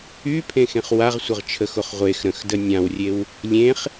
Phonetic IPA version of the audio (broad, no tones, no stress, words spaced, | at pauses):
ypʰẽxẽχ waʁsʷəʁt͡ʃʰəxoχ ʁʷex ɾə̃xdə nʲãwrʲew | lʲẽχ